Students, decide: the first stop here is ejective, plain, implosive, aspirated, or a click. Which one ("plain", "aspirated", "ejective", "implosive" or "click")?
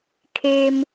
aspirated